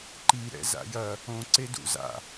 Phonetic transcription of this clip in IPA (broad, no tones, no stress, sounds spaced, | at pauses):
ǃ i ɾ ɛ̰ z a̰ j ɐ | õ ǀ e d ṵ z a̰